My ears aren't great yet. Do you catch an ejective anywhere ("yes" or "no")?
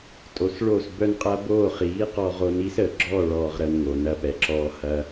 yes